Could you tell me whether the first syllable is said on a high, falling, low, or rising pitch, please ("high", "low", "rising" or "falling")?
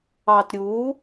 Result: low